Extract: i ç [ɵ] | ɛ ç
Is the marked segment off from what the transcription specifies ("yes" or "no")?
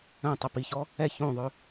yes